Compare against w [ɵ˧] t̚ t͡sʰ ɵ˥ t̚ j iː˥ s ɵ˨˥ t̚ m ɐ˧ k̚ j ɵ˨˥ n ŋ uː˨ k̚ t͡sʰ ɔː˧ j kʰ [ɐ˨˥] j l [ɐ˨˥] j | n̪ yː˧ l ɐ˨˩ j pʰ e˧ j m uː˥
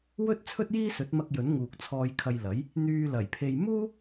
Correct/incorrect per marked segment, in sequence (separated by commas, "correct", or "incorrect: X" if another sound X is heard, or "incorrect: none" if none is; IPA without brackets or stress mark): incorrect: ɵ˥, incorrect: ɐ˧, correct